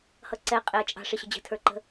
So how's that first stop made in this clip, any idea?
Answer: click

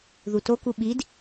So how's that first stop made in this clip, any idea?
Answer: plain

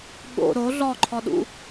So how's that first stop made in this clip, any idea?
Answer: implosive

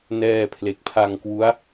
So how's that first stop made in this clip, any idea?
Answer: aspirated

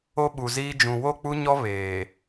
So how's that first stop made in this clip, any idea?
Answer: implosive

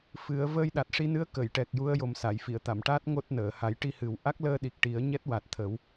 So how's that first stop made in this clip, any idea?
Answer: implosive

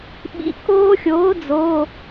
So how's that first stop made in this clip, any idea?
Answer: implosive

